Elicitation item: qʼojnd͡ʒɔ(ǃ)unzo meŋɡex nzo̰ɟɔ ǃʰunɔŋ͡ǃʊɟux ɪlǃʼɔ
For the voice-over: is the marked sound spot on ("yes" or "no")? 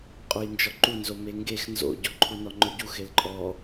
yes